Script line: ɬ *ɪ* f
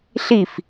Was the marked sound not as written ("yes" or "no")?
yes